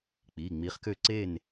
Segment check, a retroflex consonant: absent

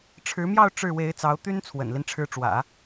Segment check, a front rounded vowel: present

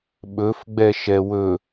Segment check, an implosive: present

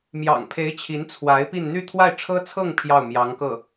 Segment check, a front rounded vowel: present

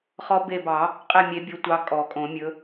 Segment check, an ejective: present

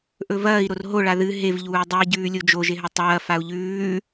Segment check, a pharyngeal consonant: absent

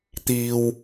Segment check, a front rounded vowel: absent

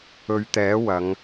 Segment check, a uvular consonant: absent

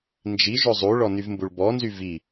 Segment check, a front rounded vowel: present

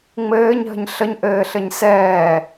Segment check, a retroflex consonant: absent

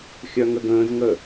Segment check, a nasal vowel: present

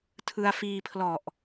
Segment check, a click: absent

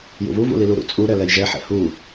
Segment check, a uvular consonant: absent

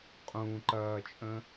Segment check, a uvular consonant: present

